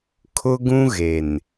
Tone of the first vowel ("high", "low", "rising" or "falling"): high